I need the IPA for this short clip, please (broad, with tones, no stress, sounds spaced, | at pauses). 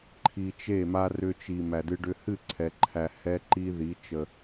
ǃʰ i˧ t͡ʃ e˦˨ m a˦ r ʏ˧ t͡ʃ i˨ m æ˨ d ɨ˧ ɖ ʏ˧ h ɨ˦˨ ǀʰ ɛ˨ ǃʰ æ˨ h ɛ˦ ǃ i˦ ð i˨˦ t͡ʃ ə˨